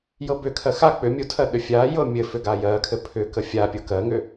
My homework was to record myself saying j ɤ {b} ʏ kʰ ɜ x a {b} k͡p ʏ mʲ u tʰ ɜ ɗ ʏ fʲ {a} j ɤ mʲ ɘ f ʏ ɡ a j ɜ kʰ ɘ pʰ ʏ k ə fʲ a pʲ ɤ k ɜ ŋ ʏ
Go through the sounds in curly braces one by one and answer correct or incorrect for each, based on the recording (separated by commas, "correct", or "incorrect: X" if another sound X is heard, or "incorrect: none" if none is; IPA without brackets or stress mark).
correct, incorrect: none, correct